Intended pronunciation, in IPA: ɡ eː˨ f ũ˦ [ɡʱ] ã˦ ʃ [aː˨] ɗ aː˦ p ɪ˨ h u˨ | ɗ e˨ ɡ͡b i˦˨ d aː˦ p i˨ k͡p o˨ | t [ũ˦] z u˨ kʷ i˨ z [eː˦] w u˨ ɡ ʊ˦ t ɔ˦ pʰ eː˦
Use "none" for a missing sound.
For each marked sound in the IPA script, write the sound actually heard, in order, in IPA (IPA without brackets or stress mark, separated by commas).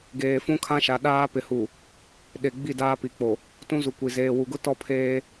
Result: kʰ, a˨, ũ˦, eː˨